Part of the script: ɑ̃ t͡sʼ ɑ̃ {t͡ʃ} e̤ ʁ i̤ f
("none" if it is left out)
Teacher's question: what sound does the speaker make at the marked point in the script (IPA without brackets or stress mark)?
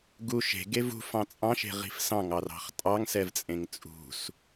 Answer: ʃ